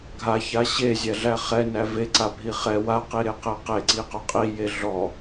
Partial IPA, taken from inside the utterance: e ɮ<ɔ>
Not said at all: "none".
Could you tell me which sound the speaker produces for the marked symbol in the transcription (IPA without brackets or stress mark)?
ɔ